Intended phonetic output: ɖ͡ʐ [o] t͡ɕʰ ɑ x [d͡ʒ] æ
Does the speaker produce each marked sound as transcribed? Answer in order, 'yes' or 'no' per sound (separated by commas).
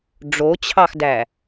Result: yes, no